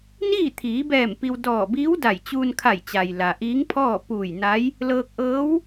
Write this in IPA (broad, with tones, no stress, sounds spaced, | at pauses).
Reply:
n iː˥˨ t̪ʰ iː˩˧ b ɛː˧˩ m p i˧ w d ɔː˧˩ b iː˧˥ w d a˧˩ j t͡ɕ uː˧ n kʰ a˧˩ j t͡ɕ a˩ j l a˩ ʔ iː˧˥ ŋ pʰ ɔː˥˨ p uː˧˩ j n a˧˥ j | l ɤː˧ k̚ ʔ ɤː˧˥ w